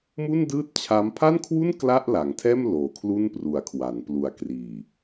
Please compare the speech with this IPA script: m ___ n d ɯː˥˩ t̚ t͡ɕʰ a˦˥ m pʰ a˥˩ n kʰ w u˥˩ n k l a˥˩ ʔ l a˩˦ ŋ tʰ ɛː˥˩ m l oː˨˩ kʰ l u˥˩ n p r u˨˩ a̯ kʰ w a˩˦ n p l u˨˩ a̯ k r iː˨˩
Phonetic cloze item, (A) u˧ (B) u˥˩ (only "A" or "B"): B